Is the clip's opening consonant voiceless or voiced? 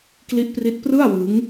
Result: voiceless